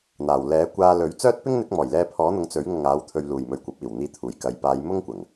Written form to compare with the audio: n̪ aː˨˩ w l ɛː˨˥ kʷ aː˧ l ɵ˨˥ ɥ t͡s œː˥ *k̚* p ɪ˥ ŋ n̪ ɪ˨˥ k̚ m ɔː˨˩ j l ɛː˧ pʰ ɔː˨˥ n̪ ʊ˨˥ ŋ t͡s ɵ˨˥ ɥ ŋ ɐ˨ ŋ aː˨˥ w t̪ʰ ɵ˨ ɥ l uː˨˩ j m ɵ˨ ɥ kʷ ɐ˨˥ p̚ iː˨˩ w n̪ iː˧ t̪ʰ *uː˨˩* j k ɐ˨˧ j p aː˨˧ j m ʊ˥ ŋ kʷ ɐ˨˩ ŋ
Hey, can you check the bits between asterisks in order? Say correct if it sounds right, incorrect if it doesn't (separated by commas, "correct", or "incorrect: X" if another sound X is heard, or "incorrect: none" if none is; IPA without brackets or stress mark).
incorrect: t̚, correct